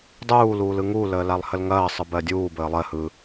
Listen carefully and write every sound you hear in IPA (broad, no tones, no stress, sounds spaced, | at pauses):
dˤ uː l uː l ɯ ŋ u l əː l a lˠ h ə l ŋ ɐː sˤ ɯ b ɜ dʲ uː b əː lˠ ɜ h ɯ